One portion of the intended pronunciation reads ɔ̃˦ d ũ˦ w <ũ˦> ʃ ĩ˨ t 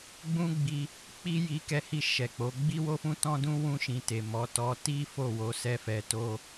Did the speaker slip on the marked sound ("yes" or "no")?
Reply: yes